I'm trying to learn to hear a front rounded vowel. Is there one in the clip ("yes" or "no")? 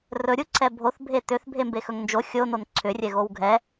yes